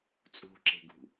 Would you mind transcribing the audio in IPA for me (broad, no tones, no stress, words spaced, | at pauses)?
t͡sʼṳǁe̤ɡṳ